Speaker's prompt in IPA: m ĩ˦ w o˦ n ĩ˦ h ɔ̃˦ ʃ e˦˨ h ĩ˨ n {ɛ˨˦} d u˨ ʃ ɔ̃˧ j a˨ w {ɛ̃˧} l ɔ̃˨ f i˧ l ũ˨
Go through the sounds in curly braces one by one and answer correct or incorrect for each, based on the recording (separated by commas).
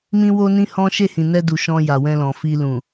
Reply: incorrect, correct